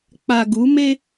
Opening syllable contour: low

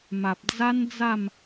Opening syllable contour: low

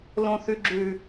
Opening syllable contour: high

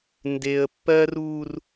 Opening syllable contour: high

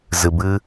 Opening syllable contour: low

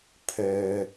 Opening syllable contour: low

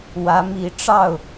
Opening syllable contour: rising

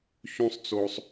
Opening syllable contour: high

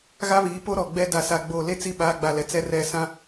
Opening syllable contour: high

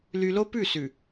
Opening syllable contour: high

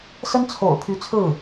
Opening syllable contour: high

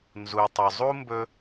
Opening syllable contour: low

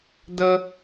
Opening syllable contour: high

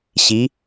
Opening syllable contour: rising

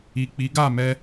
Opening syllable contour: low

